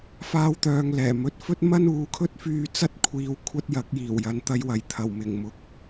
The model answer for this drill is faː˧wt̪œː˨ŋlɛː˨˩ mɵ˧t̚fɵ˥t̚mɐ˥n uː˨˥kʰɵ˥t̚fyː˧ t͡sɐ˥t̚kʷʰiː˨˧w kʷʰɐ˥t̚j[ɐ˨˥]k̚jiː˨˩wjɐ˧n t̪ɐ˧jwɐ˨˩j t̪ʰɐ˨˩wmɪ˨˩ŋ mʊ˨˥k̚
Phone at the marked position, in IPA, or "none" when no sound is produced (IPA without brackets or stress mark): ɐ˨˥